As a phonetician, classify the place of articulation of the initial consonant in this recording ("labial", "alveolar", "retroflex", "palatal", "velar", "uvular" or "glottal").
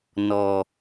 alveolar